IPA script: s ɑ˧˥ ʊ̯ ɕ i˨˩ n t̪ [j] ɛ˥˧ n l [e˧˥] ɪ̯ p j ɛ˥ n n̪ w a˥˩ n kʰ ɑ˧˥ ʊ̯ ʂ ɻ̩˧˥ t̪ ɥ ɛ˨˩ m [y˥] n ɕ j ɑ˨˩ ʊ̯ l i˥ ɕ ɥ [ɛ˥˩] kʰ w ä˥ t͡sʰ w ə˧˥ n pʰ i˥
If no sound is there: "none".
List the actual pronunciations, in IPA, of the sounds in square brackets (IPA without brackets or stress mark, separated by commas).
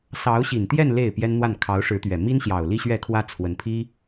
j, e˥˩, i˥, ɛ˥˩